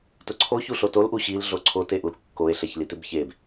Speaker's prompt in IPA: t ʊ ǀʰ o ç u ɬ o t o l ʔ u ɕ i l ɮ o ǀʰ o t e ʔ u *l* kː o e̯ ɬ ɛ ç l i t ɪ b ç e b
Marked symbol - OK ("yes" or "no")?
yes